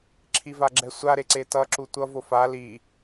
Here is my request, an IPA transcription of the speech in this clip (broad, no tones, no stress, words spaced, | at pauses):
ǁʰivaɡ͡ǁɛsʷa ɾeǀetʌ ǁutʷʌv ofa li